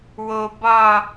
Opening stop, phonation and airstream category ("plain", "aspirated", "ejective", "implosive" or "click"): plain